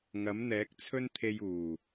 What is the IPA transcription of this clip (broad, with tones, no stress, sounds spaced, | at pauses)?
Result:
ŋ ɐ˨˥ m n̪ ɛː˨˥ k̚ t͡sʰ ɵ˥ n t̪ʰ e˧ j uː˨˩